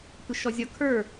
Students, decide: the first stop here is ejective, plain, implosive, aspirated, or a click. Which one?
plain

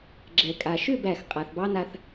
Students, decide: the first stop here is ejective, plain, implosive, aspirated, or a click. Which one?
click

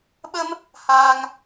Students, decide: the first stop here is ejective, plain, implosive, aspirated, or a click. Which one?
implosive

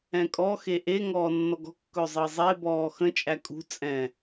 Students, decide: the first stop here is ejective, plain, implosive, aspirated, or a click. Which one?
ejective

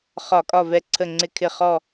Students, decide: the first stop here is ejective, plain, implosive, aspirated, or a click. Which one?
ejective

